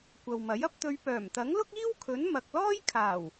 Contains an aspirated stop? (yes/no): yes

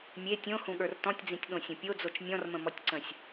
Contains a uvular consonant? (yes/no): no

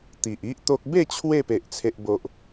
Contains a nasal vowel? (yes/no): no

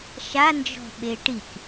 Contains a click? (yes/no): no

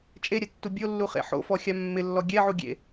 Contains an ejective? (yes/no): yes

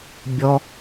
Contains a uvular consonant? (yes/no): no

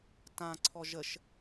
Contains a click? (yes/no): yes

